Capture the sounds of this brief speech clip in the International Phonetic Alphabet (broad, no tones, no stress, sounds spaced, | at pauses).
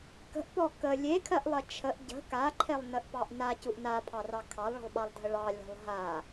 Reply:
k ə̤ ʔ p ɔ k ə lʲ e kʰ ɜ ʔ lˠ ɜ t͡ʃʰ ə ʔ ɟ ə̤ k a ǃʰ e lˠ n ə ʔ p ɑ ʔ n a c u ʔ n a pʰ ɑ r ɑ kʰ ɑ lˠ ɭ ə̤ lˠ ɓ ɑ lˠ dʱ ə ɭ ɑ lʲ ɔ̤ lˠ ɦ a